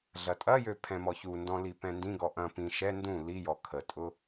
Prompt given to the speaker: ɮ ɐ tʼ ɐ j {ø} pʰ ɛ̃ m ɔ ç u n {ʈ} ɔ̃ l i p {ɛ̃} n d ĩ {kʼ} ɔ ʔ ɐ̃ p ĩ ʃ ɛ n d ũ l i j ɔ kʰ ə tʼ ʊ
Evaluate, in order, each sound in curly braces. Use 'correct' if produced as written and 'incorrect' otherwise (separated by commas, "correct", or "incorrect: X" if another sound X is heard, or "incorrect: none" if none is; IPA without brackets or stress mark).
correct, incorrect: d, correct, incorrect: ɡ